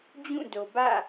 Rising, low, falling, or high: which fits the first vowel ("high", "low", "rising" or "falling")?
falling